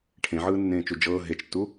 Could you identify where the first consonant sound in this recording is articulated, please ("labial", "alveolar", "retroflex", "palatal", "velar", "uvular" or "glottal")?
retroflex